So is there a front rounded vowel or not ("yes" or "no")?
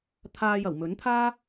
no